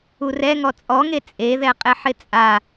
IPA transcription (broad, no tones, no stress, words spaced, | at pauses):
urɛŋɔ t͡sʼɔŋe t͡sʼeðɛ qʼɪħɪt͡sʼa